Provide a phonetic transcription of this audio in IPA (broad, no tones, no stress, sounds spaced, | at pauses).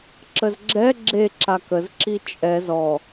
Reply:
ǁ ə z ɡ͡ǁ ɛ ɡ͡ǁ e ǁ a k ə z ǁ i t͡ʃʼ ɛ z ɔ